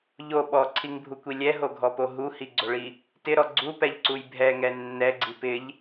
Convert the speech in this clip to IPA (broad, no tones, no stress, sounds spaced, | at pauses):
ʎ o ɓ ɔ ǀʰ i ŋ bʱ u kʷ i lʲ ɛ ɦ o ɡʱ ɔ p o ɦ u h i ɡ͡ǀ o ɭ i | t ɪ ɾ ɔ ɡ͡ǀ u p ɛ ʎ ǀ u j bʱ ɛ ŋ ɛ nː ɛ ɡ͡ǀ i p ɪ ʎ